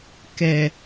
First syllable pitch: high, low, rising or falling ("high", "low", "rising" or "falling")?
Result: low